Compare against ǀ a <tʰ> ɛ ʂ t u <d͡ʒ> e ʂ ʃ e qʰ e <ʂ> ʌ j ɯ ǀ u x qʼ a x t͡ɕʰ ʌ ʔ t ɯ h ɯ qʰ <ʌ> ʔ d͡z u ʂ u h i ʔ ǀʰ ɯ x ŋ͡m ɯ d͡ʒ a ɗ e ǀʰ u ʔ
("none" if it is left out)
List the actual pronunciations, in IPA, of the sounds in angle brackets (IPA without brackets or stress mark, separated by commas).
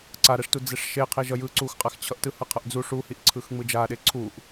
ɾ, d͡z, ʒ, ʌ